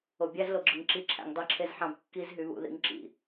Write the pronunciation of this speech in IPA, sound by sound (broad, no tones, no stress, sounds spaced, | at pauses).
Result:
o bʲ æ z l o ɡ͡ǁ ɯ ŋ ǁ i ǁʰ æ̰ ŋ dˤ e ǁʰ e z ħ ɑ̃ b kː i z ɦ y β ṵ ð ḭ ŋ ǁ ḭ